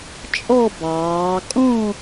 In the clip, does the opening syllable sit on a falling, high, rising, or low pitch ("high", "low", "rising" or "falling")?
falling